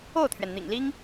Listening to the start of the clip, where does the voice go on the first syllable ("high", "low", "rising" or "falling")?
falling